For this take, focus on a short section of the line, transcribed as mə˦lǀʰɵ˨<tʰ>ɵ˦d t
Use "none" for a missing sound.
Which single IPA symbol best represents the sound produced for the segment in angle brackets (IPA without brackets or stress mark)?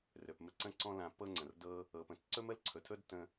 tʰ